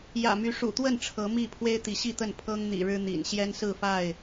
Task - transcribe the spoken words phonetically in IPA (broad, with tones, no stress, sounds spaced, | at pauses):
j ä̰˨˩ m y˨˦ ʂ ṵ˨˩ t̪ w ə˥˨ n ʈ͡ʂʰ ɤ˨˦ m i˥˨ pʰ w e˦ ɪ̯ t̪ i˨˦ ɕ i˥˨ t̪ ə˥˨ n pʰ ɤ˦ ŋ n̪ ḭ˨˩ ɻ ɻ̩˦ n̪ ḭ˨˩ n ɕ j ɛ˦ n s ɹ̩˥˨ f a˥˨ ɪ̯